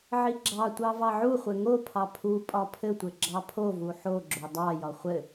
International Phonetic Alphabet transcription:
ʕiɡ͡ǁɑtʷɑ vɑʕuχʷɘ ŋopʰɑ pʰu pʼɒpʰɘtʷɘ ɡ͡ǁɑpʰovu ħoɡ͡ǁo dˤɑjɒ χʷɘ

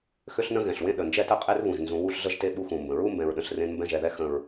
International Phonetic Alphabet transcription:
xʏ˦ɬnə̃˦ ɣɛ̃˨ɬwẽ˦ ɗə˨nd͡ʒɛ˦tə˦qʼe˦r βũ˨ʒnzũ˨˦ wu˦ɬ ɮə˦ʒte˦ ɓu˦xũ˨mbə̃˨ ɹu˦mbɛ̃˨ɹɗə̃˨ɬ rẽ˦nmbɛ̃˦ʒɛ˨ðɛ˦ xə̃˨ɹ

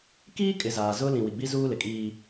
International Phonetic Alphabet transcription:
kiː˦kʼɪ˨ zaː˨ zʊ˦lĩ˨ wi˨ɡ͡bi˦zuː˦lɪ˨ kʼiː˦

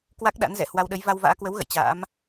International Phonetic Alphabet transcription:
kwa˦˥k̚ɗa̰˧˥nzɛ̰˧˨ hwa˧wɗə˨˦j va˧wva̰ː˧˥kwə˨˦wɣə̰˧˨j t͡ɕa̰ː˧˥m

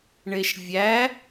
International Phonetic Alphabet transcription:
ɳeʃvʲæ

